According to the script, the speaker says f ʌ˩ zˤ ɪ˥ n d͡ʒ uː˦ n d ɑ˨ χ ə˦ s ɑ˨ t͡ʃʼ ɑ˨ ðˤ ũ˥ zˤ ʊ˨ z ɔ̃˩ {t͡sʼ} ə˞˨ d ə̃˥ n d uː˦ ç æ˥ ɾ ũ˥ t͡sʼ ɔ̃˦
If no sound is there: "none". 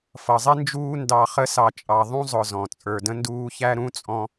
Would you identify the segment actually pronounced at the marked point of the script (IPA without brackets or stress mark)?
t͡sʼ